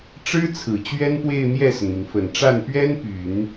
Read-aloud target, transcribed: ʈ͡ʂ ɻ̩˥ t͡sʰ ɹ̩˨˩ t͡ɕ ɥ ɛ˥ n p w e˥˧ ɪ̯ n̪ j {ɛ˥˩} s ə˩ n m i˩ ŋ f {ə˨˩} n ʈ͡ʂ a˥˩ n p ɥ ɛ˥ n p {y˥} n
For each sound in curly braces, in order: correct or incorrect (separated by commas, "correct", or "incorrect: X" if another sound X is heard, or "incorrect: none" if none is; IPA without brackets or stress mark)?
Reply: correct, correct, incorrect: y˨˩˦